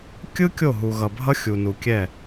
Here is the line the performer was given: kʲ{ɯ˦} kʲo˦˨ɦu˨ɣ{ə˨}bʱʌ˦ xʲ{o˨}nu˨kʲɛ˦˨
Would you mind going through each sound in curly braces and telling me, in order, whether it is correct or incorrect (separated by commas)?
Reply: correct, incorrect, incorrect